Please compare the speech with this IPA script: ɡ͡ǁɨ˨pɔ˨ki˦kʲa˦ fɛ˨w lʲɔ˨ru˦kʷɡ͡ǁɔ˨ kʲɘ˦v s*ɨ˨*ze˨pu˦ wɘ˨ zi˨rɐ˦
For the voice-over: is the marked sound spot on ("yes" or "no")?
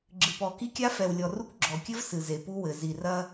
yes